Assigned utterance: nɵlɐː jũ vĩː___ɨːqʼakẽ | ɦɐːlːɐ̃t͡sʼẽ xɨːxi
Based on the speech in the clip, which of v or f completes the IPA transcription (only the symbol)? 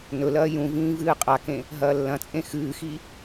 v